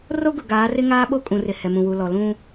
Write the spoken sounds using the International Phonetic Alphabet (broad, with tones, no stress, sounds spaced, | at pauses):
r o˦ ɡ ʊ˨ ɡ aː˨˦ r ɪ˦ ŋ aː˦ ɓ o˦ kʼ ũ˨ r ɪ˨ h ɛ˨ m ũ˨ w u˨ l ɔ˨ l ũ˦